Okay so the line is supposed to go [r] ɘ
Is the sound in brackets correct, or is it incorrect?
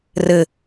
correct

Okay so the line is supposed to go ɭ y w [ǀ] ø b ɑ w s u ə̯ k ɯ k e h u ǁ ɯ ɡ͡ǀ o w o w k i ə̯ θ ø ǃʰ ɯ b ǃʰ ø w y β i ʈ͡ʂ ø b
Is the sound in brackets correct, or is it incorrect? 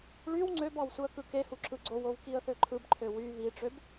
incorrect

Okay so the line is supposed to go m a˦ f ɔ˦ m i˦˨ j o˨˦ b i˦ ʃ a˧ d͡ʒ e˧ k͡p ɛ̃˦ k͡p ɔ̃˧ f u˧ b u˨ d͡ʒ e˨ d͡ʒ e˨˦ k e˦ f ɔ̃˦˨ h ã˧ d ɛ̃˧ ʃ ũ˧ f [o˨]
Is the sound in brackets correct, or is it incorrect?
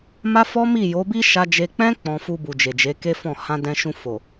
correct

